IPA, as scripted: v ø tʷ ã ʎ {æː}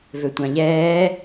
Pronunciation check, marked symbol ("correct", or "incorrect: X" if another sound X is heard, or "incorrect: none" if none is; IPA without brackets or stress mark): incorrect: ɛː